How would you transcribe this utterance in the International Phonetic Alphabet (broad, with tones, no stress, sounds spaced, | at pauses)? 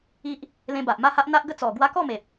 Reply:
i˦ ʔ | l ẽ˧ b a˨ ʔ m a˥˧ h a˦ ʔ n̪ a˦ ʔ ɡ ə˦ t͡s ɔ˨˩ ɡ w a˦ k ɔ˥˧ m e˨ p̚